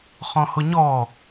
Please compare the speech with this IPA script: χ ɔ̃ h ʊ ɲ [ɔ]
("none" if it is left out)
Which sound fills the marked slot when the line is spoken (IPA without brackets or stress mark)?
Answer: ɔ